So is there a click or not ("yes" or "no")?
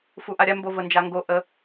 no